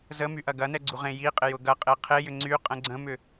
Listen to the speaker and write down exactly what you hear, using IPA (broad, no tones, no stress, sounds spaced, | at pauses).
z ə m y ʔ ɐ ɡ ɐ n ɛ ɡ͡ǀ u ʁ ẽ j i qʼ ɪ j ʊ ɡ ɐ qʼ e qʰ e j ʏ ŋ͡ǀ y qʼ ə̃ ɡ͡ǀ ə̃ m ʏ